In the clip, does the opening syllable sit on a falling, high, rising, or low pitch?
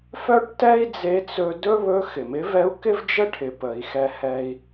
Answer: high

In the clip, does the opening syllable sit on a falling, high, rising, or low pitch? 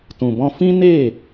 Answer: low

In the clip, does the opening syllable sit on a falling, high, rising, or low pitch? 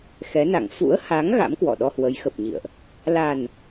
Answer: rising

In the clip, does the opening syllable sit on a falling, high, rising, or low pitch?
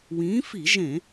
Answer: rising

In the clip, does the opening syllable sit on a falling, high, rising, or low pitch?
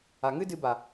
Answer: low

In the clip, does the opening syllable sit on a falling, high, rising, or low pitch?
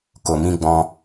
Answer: low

